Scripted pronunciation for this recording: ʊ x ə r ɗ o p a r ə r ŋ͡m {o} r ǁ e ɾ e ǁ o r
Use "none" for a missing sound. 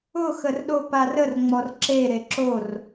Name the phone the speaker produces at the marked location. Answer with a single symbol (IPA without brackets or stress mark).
ɔ